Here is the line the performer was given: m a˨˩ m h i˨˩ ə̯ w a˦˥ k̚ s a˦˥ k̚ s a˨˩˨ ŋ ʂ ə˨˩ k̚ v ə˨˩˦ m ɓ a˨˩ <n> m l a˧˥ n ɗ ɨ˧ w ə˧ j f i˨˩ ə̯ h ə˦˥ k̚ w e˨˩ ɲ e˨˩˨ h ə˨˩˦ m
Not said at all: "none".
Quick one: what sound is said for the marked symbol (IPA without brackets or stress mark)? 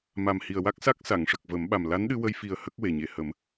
none